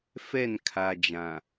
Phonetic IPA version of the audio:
f ɛ˦˨ n kʰ a˨ d͡ʒ ã˨

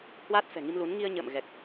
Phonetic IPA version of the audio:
h w aː˦˥ t̚ f ɛ̤˨˩ ŋ i˧ m l u˨˦ n ŋ i˧ ə̯ ɲ ə̰ː˧˨ m ɣ ɛ˨˩ k̚

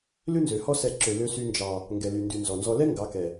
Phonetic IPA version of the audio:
l ʉ˦ n z ø˨ h ɔ˦ s ɛ˧ ǁ ø˨ l ø˧ s y˧ n d͡ʒ ɑ˨ | ŋ ɡ ɛ˨ l y˨ n d y˨ n z ɔ˨ n z ɔ˧ l ɛ˦ ŋ ɡ ɑ˨˦ k ɛ˨

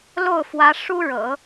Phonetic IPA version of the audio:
l o˥˩ ʊ̯ f w ä˧˥ ʂ u˥ ɻ ɤ̰˨˩˦

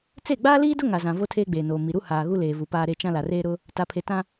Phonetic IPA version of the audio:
t͡s e˦˨ ɡ͡b aː˦ l iː˦ d ʊ˦ ŋ a˨ z ã˨ v o˦ tʰ eː˦ ɡ͡b eː˨ n oː˨ m i˨ ɾ u˦ h aː˨ ɣ u˦ l eː˨ v u˨ p aː˦ ɾ e˦ t͡ʃ ã˦ l a˨ r eː˦ ɾ ʊ˦ | t a˨ pʰ e˨ t ã˦

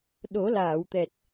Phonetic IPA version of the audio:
ɗ o˨˩˦ l aː˨˩˨ w t̪ ɛ˨˩ t̚

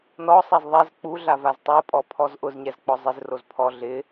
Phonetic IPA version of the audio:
n ɔ sˤ ɛ z ðˤ ɛ z k͡p u ɮ a v a z tˤ o pʼ ɔ pʰ ɔ z ʔ ʊ z ɲ ɛ z k͡p ɔ zˤ ɪ z r o z pʰ ɔ ɮ ɪ

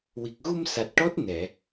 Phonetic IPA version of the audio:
w i˨˩ k̚ ɣ u˧ m s a˨˩ t̚ ʈ ɔ˦˥ t̚ n ɛ˨˩˨

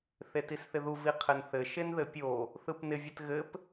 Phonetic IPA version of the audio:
θ e t i s θ ɪ ð u v i qʰ ɘ n θ ɘ ʃ e n ð ɘ pʲ o | θ ɯ p n ɪ vʲ ɘ t ɣ ɘ p

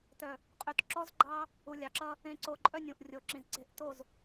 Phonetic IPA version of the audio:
t œ˨ | qʼ ø˨ t ǁ ɔ˦ z ɡ͡ǃ ɑ˦ | u˨ lʲ ɑ˨ ǁ ʌ˦ | ẽ˨ ǀ o˨ ǃʼ œ˦ nʲ ũ˨ ʔ rʲ o˨ ǁ ĩ˨ z ǀ e̤˨ ʔ t o˦˨ z

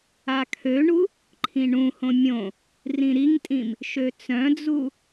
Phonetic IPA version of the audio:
a kʰ ø ɳ u | ǃʰ ĩ ɳ ũ h õ mʲ õ | r ĩ ɾ i ŋ tʼ ĩ m | ʃ ø t͡s œ̃ d͡z u

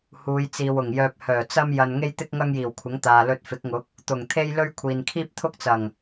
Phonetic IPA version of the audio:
h uː˨˧ j t͡s iː˨ w ʊ˨˩ ŋ j œː˧ p̚ h œː˨˩ t͡s ɐ˥ m j ɐ˧ n ŋ e˥ j t̪ ɪ˥ k̚ ŋ ɐ˥ ŋ j iː˨˩ w kʷʰ ɪ˨˥ ŋ t̪ aː˨ l ɵ˧ t̚ f ɪ˨˥ k̚ ŋ ʊ˨˥ k̚ | t̪ ʊ˨˩ ŋ t̪ʰ e˥ j l ɵ˥ ɥ kʷʰ iː˨ n kʰ iː˥ p̚ t̪ʰ ʊ˥ k̚ t͡s ɐ˨˩ ŋ

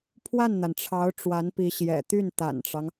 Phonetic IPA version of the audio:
pʰ w a˥˩ n n̪ a˩ n ʈ͡ʂʰ ɑ˧˥ ʊ̯ ʈ͡ʂ w a˧˥ n p i˧˥ ɕ j ɛ̰˨˩ t̪ y˥˩ n t̪ a̰˨˩ n ʈ͡ʂ ɑ˦ ŋ

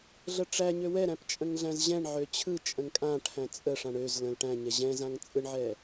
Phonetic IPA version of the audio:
ɮ ə ʈ͡ʂ æ ɲ ø w ɛ ɾ æ̃ p t͡ʃʼ ə̃ ŋ ɮ æ̃ z ʑ ɛ̃ ɳ ʕ ø t͡ɕʰ ɯ t͡ʃʼ ə̃ ŋ kʼ ã ʈʰ æ̃ t͡sʼ ə ʂ ã ɳ ø z l ə̃ l ʈ æ̃ ɲ ɛ ʑ ɛ̃ z ã ŋ t͡sʼ ɯ ɳ ʕ ɛ

